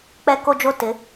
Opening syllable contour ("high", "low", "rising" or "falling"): high